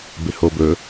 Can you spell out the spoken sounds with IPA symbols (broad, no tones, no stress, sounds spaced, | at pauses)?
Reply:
b ɪ h o b ɵ